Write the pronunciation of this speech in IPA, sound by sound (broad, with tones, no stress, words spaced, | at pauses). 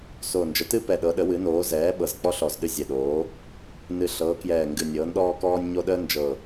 soː˨˩nd͡ʒə˩˥tɨ˦pɛ˨˩ ɗɤ˩˥ɗə˩˥wɨ˩˥noː˩˥ zɛː˩˥ ɓɤ˨˩zk͡pɔ˦ ɬɔ˨˩zɗɨ˦ zʲɛ˨˩ɗoː˩˥ | nɨ˨˩ɬɤː˩˥kjɛː˨˩ŋɡɨ˨˩ nʲɤː˩˥nɗɔː˦ kɔː˦nʲɲo˦ ɗəː˦nd͡ʒɤ˨˩